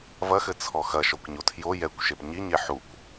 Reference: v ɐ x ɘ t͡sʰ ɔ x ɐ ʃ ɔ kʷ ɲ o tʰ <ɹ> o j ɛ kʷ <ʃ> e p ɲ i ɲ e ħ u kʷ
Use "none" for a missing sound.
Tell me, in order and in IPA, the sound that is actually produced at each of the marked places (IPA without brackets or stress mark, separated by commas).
j, ʃ